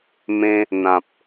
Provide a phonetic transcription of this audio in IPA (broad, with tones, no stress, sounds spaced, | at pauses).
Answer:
m ẽ˧ | n̪ ã˨ p̚